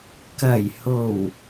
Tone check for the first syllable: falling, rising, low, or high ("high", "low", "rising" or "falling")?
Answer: low